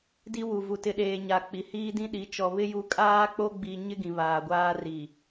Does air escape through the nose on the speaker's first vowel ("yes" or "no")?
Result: no